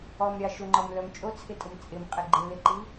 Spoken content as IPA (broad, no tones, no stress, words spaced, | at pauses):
ɔmɾʲɑ ʃʊŋ͡ǃɔmlœm t͡ʃʼot͡sʰɪtʼʊm t͡sʼɪmqʼɪ ɡ͡ǃɪlɪǃi